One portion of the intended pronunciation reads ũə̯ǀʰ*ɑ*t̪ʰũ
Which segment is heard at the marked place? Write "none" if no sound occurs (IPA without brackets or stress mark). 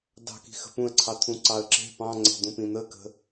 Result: ɑ